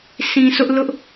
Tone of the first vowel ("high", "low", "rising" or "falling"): low